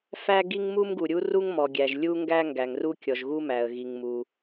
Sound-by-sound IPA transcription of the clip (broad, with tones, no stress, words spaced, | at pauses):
fæ˥ɡi˥ŋ mu˥mɡu˩ɾʲu˥ ru˥ŋmɔ˩ ɡʲæ˩ʒ lʲu˥ŋɡæ˥ ŋɡæ˩ŋru˥ kʲɔ˩ʒ ɣu˥mæ˩ə̯ɣi˩ŋ mu˩